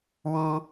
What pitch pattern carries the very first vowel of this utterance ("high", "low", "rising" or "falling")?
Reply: high